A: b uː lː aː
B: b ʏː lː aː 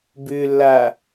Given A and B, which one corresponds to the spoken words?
B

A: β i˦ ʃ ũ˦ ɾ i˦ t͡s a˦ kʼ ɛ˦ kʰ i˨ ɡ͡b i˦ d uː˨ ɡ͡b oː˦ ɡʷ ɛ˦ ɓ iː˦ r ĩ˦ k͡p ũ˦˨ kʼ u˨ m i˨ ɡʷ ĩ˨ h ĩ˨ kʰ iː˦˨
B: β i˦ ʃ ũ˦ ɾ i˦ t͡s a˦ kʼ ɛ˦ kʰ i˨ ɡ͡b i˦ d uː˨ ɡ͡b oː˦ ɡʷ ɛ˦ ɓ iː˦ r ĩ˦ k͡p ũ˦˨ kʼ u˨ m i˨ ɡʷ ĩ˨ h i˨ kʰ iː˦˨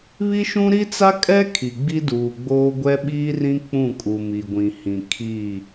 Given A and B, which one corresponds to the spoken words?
A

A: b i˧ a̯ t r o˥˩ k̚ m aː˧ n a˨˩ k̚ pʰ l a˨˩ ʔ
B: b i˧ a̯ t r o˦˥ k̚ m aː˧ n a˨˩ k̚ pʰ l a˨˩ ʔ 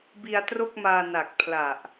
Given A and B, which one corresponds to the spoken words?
A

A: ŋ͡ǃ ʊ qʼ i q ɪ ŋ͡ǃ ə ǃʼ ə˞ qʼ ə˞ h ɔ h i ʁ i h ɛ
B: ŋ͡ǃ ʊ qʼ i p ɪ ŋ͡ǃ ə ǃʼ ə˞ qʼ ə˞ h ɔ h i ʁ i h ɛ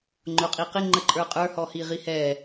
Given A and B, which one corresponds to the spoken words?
A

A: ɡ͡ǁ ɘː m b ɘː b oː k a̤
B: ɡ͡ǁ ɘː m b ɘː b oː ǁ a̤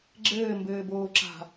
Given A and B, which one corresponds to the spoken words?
B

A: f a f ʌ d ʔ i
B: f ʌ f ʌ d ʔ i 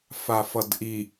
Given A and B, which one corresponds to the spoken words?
A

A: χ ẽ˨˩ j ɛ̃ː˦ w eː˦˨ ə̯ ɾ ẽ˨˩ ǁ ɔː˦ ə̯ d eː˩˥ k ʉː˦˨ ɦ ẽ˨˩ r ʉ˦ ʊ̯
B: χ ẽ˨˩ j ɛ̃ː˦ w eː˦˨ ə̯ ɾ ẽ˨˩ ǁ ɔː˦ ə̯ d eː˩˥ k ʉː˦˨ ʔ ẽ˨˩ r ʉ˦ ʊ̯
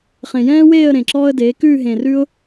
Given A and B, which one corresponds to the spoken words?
A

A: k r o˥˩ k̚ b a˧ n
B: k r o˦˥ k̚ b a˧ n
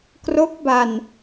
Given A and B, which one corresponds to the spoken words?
B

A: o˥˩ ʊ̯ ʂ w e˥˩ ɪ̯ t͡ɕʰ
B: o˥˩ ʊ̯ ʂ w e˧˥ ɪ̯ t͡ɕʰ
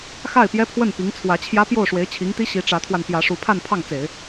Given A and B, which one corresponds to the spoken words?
B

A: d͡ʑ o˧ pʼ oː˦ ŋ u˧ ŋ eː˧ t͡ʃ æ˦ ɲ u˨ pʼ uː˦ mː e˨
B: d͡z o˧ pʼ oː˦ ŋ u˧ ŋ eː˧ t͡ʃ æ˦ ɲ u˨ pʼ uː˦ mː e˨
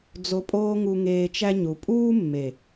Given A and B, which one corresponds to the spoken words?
B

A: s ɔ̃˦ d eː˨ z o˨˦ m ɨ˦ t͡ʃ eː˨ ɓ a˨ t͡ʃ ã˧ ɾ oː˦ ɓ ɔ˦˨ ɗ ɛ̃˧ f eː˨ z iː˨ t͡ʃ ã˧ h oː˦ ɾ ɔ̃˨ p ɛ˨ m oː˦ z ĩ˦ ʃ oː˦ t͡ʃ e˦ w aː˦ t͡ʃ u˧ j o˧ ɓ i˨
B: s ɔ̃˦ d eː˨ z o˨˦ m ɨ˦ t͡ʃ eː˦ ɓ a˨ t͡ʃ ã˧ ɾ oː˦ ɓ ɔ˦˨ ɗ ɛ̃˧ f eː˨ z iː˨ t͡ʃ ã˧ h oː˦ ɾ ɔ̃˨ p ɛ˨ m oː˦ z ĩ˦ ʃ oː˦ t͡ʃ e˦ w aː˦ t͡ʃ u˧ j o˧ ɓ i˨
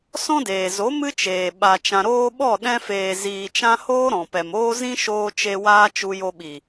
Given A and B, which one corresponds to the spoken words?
A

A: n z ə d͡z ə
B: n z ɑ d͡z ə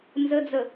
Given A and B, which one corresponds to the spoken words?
A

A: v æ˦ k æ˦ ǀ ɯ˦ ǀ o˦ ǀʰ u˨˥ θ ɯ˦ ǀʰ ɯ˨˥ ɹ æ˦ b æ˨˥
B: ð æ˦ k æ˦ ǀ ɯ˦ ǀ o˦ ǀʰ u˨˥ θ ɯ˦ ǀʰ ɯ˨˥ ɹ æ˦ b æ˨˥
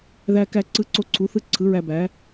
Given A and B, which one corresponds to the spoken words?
B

